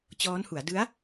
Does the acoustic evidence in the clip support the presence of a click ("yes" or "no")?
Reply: no